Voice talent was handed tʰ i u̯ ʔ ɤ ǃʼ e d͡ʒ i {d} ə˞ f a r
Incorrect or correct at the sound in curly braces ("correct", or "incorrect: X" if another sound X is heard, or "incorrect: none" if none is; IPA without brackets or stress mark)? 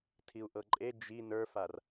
incorrect: n